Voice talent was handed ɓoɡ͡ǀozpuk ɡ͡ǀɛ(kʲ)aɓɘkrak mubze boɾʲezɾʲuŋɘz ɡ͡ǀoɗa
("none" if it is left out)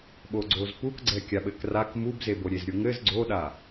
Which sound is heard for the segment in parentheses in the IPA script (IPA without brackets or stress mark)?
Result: kʲ